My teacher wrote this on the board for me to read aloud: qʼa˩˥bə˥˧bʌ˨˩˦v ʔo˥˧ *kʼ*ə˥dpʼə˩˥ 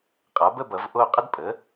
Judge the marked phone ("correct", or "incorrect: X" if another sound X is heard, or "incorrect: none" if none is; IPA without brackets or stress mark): incorrect: qʼ